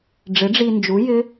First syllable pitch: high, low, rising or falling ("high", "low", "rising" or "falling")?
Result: rising